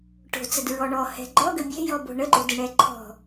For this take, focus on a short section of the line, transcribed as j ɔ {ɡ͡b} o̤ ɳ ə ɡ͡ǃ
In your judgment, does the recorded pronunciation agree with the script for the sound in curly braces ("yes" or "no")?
no